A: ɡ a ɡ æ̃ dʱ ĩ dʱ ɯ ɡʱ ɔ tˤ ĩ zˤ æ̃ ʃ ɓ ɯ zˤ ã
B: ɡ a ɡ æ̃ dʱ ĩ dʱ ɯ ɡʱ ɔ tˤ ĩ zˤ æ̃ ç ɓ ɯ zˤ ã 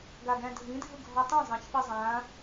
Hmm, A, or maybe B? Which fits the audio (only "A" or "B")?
B